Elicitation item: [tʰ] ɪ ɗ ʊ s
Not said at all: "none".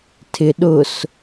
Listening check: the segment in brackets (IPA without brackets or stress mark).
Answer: tʰ